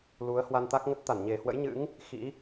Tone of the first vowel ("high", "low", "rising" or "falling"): rising